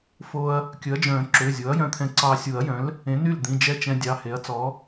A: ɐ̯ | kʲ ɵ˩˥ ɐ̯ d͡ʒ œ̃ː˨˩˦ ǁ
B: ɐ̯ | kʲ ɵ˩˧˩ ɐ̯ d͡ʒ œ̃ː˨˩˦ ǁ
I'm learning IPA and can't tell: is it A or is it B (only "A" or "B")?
A